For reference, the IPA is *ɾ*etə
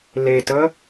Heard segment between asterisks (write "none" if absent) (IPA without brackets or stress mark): l